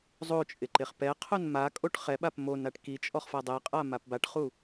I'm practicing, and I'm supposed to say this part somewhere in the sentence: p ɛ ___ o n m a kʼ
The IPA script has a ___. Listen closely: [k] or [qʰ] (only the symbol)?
qʰ